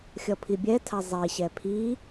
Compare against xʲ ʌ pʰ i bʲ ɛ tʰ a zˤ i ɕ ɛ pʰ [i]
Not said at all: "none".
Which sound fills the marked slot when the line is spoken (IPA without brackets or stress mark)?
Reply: i